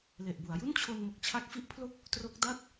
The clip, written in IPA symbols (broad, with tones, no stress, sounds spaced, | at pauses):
l e˨˩ ʔ b u˩˦ a̯ j u˥˩ n t͡ɕʰ o˧ n m o˨˩ k̚ t͡ɕʰ a˦˥ k̚ f i˦˥ ʔ pʰ l o˥˩ k̚ | t r o˦˥ k̚ d a˦˥ t̚